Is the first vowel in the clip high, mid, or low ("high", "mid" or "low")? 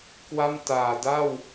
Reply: low